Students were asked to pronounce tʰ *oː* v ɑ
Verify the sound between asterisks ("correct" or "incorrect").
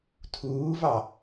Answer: incorrect